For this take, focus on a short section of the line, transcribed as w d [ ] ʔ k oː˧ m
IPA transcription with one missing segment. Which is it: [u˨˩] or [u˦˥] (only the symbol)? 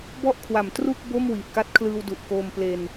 u˨˩